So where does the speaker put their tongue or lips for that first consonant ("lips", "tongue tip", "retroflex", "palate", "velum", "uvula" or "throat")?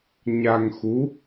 palate